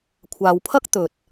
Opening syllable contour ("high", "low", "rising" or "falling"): low